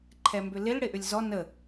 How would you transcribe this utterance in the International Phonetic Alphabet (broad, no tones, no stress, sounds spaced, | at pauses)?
ǃʰ ɛ m b ʏ l ɪ l ɽ ɪ ʔ ʏ lʲ z ɔ n ə